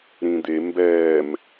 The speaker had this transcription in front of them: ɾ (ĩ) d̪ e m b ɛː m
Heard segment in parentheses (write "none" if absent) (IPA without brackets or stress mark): ĩ